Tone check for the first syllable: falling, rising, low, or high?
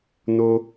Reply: high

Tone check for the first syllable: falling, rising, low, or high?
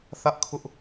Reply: high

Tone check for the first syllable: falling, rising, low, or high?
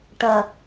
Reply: low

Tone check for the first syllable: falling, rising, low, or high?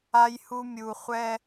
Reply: low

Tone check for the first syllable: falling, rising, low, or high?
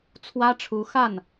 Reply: high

